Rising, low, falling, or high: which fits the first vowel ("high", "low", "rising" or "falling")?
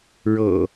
low